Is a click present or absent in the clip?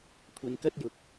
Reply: absent